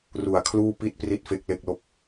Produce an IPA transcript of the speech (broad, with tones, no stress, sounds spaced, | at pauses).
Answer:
r u˨˩ a̯ kʰ l uː˥˩ p i˥˩ t̚ p r i˥˩ t̚ f e˦˥ k̚ l e˥˩ k̚ l o˥˩ k̚